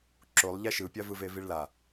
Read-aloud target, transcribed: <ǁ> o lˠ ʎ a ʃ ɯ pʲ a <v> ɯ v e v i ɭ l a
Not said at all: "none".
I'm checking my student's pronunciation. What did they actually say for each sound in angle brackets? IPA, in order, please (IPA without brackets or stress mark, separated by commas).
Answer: ǁ, v